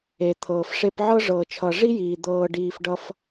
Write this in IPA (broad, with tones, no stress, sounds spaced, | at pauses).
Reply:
e˨ t̪ʰ ɤː˨ f ʂ e˧ p ʕ ɤ˦ ʐ ɤː˨ t͡ʃʰ ʌ˨ ʐ i˦ j iː˨ d̪ ɤː˧ ɖ iː˧ f ɖ ʌ˦ f